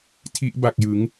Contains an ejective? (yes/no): no